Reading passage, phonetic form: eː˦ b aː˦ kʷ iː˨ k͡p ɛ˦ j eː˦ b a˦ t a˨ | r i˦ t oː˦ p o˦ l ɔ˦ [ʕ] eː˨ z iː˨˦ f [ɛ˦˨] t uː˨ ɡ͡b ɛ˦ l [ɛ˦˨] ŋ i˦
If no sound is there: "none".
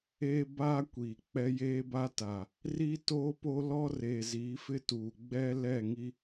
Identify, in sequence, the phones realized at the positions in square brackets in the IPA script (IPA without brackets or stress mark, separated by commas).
r, ɪ˦˨, ɛ˦˨